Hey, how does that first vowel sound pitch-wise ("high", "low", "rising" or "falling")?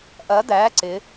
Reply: rising